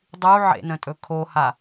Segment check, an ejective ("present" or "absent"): present